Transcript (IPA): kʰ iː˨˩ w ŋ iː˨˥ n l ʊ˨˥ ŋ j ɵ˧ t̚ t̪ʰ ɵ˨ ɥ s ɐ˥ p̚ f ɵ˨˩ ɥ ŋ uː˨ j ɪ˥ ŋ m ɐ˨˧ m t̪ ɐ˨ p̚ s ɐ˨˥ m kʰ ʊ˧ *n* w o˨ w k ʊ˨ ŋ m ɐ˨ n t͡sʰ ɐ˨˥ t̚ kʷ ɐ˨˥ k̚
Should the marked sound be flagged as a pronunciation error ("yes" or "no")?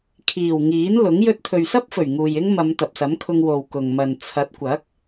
yes